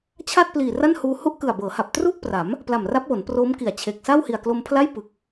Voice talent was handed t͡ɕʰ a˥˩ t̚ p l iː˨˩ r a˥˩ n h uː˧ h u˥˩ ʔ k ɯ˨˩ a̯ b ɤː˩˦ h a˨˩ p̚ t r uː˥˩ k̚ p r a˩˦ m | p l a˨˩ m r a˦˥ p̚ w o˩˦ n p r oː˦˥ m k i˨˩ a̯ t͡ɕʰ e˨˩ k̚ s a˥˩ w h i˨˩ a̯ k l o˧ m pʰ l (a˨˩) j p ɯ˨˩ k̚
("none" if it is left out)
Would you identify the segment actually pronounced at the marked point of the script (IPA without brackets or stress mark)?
a˥˩